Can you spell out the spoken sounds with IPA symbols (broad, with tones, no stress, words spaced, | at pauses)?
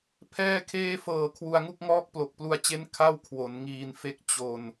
pʰɛː˥˩kʰeː˥˩ fɤː˨˩ kʰwu˧a̯ŋu˥˩k̚ŋɔː˥˩k̚ plo˨˩k̚plu˧a̯t͡ɕe˦˥n kʰa˥˩wkʰwo˩˦nŋiː˧nfe˦˥k̚ t͡ɕo˧n